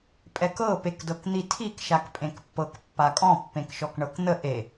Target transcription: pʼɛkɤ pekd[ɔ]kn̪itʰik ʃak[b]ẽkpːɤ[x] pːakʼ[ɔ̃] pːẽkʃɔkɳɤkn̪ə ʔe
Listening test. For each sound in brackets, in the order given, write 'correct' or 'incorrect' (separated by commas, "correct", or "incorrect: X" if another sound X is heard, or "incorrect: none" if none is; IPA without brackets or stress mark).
incorrect: ɤ, incorrect: pʼ, incorrect: k, correct